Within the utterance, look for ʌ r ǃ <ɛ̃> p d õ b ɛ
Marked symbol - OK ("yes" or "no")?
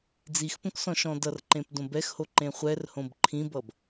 no